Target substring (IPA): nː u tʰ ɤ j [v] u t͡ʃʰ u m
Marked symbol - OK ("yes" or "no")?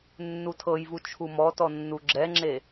yes